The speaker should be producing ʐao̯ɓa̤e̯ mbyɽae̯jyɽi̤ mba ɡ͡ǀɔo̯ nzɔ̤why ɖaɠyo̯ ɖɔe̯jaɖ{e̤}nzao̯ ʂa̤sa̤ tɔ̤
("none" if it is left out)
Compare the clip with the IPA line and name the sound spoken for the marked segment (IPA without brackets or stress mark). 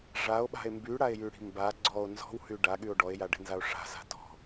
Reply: e̤